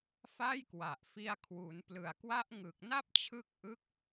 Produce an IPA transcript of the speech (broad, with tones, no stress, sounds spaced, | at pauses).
f a˥˩ j k w a˨˩ ʔ f i˧ a̯ kʰ w u˩˦ n p l ɯ˨˩ a̯ k w a˦˥ ʔ ŋ ɯ˨˩ k̚ n a˥˩ p̚ t͡ɕʰ ɯ˦˥ k̚ ʔ ɯ˦˥ k̚